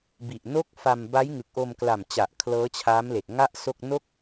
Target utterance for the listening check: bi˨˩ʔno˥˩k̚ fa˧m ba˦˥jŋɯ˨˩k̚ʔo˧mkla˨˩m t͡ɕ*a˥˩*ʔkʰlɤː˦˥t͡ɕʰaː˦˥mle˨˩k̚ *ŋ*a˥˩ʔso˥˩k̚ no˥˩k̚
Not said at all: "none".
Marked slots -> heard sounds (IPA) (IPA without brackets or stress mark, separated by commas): a˨˩, ŋ